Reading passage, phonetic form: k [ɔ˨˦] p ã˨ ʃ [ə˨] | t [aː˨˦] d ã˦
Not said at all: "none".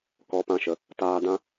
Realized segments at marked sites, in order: ɔ˨˦, ə˨, aː˧

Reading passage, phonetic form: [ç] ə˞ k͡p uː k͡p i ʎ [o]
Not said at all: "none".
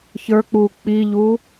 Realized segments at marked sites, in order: ç, u

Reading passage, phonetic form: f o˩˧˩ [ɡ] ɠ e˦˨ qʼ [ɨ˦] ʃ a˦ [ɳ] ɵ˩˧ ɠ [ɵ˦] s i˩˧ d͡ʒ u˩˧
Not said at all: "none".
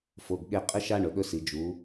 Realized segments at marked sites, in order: ɡ, ɨ˦, ɳ, ɵ˦

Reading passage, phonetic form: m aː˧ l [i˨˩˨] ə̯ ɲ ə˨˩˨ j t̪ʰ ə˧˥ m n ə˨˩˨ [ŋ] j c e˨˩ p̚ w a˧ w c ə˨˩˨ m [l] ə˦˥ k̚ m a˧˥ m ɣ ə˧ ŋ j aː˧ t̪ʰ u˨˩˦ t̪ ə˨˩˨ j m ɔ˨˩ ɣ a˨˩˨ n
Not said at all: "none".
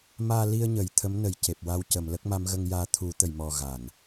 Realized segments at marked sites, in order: i˧, none, l

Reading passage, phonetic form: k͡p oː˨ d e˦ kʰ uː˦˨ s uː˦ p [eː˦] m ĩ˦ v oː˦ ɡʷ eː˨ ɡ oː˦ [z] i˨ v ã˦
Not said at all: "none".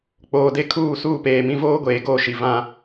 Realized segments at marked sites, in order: eː˨, ʃ

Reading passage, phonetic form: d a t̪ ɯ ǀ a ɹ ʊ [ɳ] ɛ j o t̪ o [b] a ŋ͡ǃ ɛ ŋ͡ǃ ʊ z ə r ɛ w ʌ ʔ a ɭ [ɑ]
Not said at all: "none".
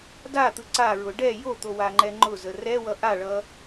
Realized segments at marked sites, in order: ɖ, w, ʌ

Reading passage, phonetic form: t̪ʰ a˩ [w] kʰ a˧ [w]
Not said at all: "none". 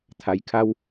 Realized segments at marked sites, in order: j, w

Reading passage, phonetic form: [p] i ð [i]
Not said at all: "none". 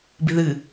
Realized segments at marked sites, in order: b, ɨ

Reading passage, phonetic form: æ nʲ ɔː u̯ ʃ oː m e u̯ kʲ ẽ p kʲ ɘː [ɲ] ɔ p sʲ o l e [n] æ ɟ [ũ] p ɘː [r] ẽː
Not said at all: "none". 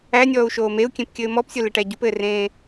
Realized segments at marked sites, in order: m, ʈ, u, r

